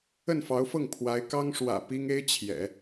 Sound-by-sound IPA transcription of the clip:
ə˥˩ n f ɑ˧˥ ʊ̯ f ɤ˥˩ ŋ pʰ w a˧˥ ɪ̯ k ɑ˥ ŋ ʂ w ä̰˨˩ p i˥ ŋ e˥ ɪ̯ t͡ɕʰ j ɛ̰˨˩˦

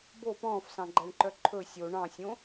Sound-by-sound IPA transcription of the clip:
b o p ɔ̃ː f s ɑ̃ ɡ͡ǃ æ ɳ ǃ œ ǃʰ ɵ sʲ o ɳ ɑ̃ sʲ õ

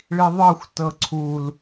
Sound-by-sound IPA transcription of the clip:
ɭ i ðˤ ɤ xʷ t ɤ ǀʰ u l

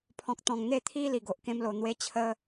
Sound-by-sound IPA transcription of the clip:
pʰ ɔ̃˨ k̚ t̪ ɔ̃˨˩ ŋ n̪ e˥˧ t̪ʰ i˦ l i˨˩ ɡ o˨ ʔ k ẽ˧ m l o˨˩ n̪ w e˧ t͡ɕʰ ə˧

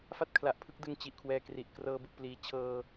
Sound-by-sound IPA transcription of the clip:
f a˥˩ t̚ kʰ l a˨˩ ʔ pʰ ɯ˦˥ k̚ d ɯ˧ ŋ t͡ɕ i˨˩ ʔ kʰ w ɛː˧ k r i˨˩ ʔ k r ɤː˧ b ɯ˨˩ k̚ p l iː˩˦ t͡ɕʰ ɤː˧

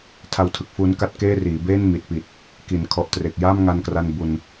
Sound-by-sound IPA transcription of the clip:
tʰ a˧ w tʰ ɯ˨˩ k̚ f uː˧ n k a˥˩ t̚ k eː˥˩ r iː˩˦ b eː˥˩ n m i˨˩ t̚ p i˨˩ t̚ | k i˩˦ n kʰ ɔ˨˩ ʔ t r e˨˩ k̚ j a˥˩ m ŋ a˧ n k r a˧ n b u˧ n

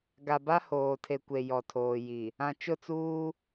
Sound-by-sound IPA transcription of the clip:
ɡ a˨ b a˦ h oː˨ tʰ e˨ kʷ e˨ j ɔ˨ tʰ oː˨ j i˨ | ã˨ t͡ʃ ʊ˦˨ t͡s uː˦

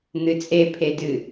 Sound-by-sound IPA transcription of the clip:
n̪ ɨ t͡sʼ e pʰ e d ɨ

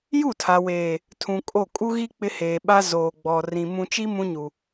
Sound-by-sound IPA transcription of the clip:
j u˦˨ tʰ a˨ w eː˨ | tʰ ũ˨ kʼ o˦˨ kʼ u˦ ɣ i˦ k͡p ɪ˦ h eː˨ ɓ a˦ z oː˨ ɡ͡b ɔ˨ r ĩ˨ m ũ˨ t͡ʃ i˦ m ũ˦ ɲ u˨

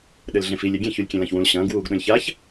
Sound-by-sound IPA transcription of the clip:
ɗ ɘ l ɮ ẽ f i lʲ e ɡʲ ẽ ç u lʲ kʲ ẽ l ã ç w ũ l ɕ ɐ̃ː ɡ w uː ɡ ɗ õ lʲ ç a ç

